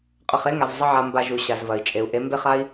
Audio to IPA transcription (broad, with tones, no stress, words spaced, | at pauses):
qʼə˨χe˦ŋa˨v zˤə˦ʕa˧mba˧ʒu˨ ɕa˨zvɐ˨i̯ t͡ʃʼe˨u̯ ʔe˨˦mbe˦χa˦i̯